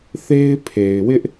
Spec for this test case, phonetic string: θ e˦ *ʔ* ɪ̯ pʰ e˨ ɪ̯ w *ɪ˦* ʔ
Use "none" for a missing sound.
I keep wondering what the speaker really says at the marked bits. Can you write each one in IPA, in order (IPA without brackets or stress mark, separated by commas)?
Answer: none, ɪ˦